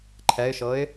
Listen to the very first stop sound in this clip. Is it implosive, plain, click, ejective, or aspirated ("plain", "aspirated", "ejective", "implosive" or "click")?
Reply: click